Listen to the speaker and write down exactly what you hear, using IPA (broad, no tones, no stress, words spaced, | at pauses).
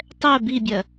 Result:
tˤɛ bibʲɜ